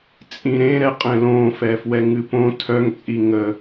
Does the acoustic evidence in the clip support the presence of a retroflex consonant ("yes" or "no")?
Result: no